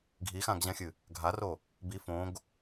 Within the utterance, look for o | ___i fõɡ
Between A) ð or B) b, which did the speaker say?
B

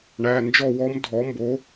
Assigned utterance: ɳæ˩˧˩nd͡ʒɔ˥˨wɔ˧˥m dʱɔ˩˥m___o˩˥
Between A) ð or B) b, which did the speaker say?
B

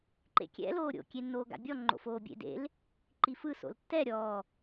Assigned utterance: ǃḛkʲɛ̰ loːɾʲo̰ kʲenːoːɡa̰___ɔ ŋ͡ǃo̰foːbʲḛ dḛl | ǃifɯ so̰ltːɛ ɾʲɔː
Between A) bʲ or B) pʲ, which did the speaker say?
A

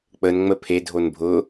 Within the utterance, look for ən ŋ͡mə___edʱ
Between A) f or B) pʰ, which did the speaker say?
B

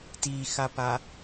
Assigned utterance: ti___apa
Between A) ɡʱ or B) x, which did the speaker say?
B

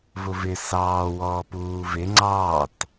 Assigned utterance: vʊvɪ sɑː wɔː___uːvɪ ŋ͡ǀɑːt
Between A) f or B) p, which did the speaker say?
B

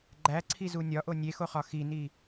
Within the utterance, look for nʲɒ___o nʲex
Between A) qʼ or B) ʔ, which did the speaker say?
B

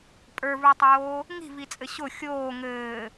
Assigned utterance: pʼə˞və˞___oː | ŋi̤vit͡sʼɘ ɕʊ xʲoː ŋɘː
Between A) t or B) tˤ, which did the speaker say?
B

